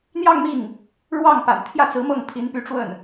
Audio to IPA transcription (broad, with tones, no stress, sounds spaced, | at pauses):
n̪ j ɑ˥˧ ŋ m i˥˩ ŋ | ɻ w ɑ˥˩ ŋ p a̰˨˩ n t̪ʰ j ä˥˩ t͡s ɹ̩˧˥ m ɤ˥˩ ŋ pʰ i˧˥ n p y˧˥ ʈ͡ʂ w ə˥˩ n